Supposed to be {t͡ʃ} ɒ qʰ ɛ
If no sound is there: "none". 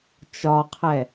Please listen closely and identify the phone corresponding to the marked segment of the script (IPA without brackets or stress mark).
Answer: t͡ʃ